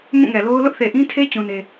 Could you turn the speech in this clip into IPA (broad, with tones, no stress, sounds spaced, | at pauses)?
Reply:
m ũ˦˨ ŋ ɛ˨ l o˦ ʊ̯ l ʊ˦ ʔ θ e˨ ʔ ĩ˦ tʰ e˦ t͡ɕ ũ˦ n e˦